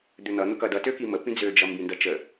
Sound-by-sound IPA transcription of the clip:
d̪ ø n̪ ʌ n̪ ʊ k ʌ d ʌ t ø k i m ə p ĩ d͡z ø d͡ʒ ʌ m b ĩ n d ʌ t͡ʃ ə

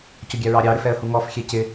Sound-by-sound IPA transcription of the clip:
c ʊ ɡʲ æ ɹ ɑ ɾʲ ɑ ɾ ɪ f ɛ ə̯ h u ŋ ɔ f xʲ ɛ c ɪ

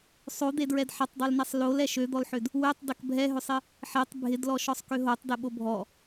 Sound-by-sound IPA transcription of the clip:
sˤ o d̪ e d ɹ ɛ d ħ ɐ tˤ dˤ ø l n ɛ sˤ l o l ɛ ʃ ø d̪ ɔ l ħ ʏ d | w ø tˤ d ɐ k bʱ ɛ ɦ ʏ sˤ ɪ | ħ e tˤ bʱ ɪ d l ɔ ʃ ɔ sˤ k ø ɦ o tˤ d e ɓ o bʱ ɔ

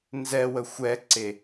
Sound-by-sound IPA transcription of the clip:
n z ɛ w ə xʷ ɛ ǀ e

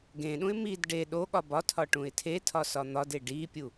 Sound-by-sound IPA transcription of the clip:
ɡ ẽ ɗ ũ ɪ̯ m i d ɖ e ɗ o ɠ ɒ b ɒ tʰ ɒ ʈ ũ ɪ̯ tʰ e tʰ ɒ s ɒ n̪ ɒ d e ɖ i pʲ u

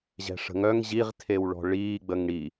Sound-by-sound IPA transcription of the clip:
ʑ ɛ̤ ʂ ə̤ ŋ œ ŋ ʑ i ʁ tʰ e w ɭ ɔ̤ ɭ iː ɡ͡b ə ŋ ɽ i

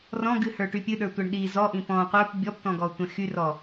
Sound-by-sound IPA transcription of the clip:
r ɔ̃ ɡ ɨ h ə˞ ʈ y pʲ ɨ ɗ ə˞ tʷ ɛ ɳ ɗ i z ɔ ʔ ĩ p ɔ̃ qʷ ə˞ p bʲ ɔ p t ɔ̃ ɡ ɔ tʷ ɛ̃ x y r ɔ

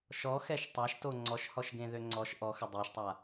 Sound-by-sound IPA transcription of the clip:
ʃ ɔ x ɛ ʃ tˤ a ʃ t o ŋ͡ǀ ɔ ʃ h ɔ ʃ ɡ ẽ ð ø ŋ͡ǀ ɔ ʃ ʔ ɔ x ə dˤ o ʃ tˤ a

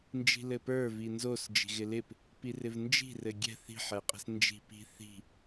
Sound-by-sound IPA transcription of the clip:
n d͡ʒ i̤ l ɘ p ə˞ v i n z o s d͡ʒ i̤ ɣ ɪ l ɪ p | p i r ɪ v n d͡ʒ i̤ r ɘ ɡʲ ɛ̤ θ i̤ ħ ɛ qʼ ɛ̤ s n d͡ʒ i̤ p i̤ θ i̤

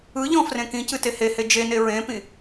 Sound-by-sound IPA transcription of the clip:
ɯ ʎ ɔ̃ f r ẽ k ĩ c ɨ t e h e h e d͡ʒ e n e ɹ ẽ p ĩ

